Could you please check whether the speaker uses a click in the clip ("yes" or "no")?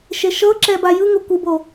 yes